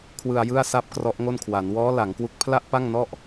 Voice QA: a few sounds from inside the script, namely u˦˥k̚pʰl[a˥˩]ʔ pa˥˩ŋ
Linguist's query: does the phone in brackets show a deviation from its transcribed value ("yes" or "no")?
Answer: no